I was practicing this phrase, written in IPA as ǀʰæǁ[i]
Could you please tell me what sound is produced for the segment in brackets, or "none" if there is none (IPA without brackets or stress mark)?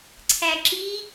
i